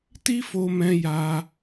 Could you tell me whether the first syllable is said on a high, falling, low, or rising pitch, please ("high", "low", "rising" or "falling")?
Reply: high